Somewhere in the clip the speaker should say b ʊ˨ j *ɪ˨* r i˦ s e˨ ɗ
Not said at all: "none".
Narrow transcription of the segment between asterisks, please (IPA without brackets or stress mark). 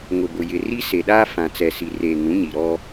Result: ɪ˨